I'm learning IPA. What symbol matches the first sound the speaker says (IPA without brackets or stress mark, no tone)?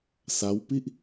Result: s